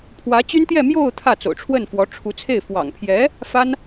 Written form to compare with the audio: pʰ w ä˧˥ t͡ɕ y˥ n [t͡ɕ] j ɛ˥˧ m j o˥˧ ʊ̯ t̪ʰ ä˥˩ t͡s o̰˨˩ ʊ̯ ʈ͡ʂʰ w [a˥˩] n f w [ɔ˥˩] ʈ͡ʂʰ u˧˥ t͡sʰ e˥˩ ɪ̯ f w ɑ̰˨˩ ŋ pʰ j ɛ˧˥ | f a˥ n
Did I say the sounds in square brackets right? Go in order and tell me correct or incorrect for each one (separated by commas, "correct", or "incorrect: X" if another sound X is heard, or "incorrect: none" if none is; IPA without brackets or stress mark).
incorrect: t̪, incorrect: ə˥˩, incorrect: ɔ˧˥